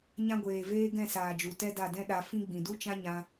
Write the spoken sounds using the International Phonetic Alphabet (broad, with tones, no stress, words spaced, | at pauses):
ɲã˧ɡʷeː˨veː˧ ɡɛ̃˦˨saː˨d͡ʒu˨ tɛ˦da˦˨dɛ̃˦ ɗa˧fĩ˦ ɡ͡bĩ˨du˦t͡ʃã˦ ɲã˦